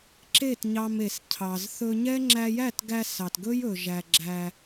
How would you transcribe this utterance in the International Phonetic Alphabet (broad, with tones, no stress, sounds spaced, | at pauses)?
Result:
ǁ e˦˨ t ɲ ɑ˧ m e˨ s cʰ ɑ˨ z θ ɵ˧ ɲ ɛ˦ ŋ͡ǁ æ˧ j æ˦˨ t ɡ æ˧ s ɑ˨ t ɡ ɵ˦ j ɵ˨ ʒ æ˨ ɡ͡ǁ æ˧